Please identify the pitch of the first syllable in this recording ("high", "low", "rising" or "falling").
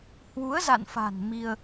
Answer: rising